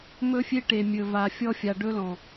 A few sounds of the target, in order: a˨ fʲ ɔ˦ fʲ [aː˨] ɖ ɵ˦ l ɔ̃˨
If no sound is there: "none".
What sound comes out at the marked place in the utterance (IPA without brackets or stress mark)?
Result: a˨